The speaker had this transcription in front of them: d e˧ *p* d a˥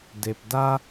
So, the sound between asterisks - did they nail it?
yes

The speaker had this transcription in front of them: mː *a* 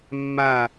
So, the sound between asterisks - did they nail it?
yes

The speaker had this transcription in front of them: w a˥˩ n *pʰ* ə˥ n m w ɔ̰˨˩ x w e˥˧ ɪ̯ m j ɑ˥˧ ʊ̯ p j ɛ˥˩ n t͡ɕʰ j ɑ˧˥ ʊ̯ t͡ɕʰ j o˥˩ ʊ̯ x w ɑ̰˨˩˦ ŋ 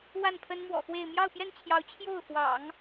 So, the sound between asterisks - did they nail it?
yes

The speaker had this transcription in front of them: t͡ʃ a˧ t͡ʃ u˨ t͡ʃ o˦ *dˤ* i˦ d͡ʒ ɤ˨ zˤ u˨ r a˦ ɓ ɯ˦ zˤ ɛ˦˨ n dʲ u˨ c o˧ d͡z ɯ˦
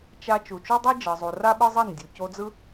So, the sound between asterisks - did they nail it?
yes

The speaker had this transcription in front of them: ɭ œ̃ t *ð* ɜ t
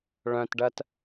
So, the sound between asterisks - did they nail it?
no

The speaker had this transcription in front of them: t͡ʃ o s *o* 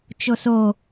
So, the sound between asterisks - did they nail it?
yes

